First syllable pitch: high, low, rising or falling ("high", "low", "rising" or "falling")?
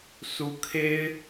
high